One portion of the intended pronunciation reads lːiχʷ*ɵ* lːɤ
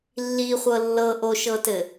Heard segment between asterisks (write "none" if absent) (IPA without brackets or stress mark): ɤ